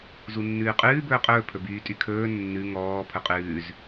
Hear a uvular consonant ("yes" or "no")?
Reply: yes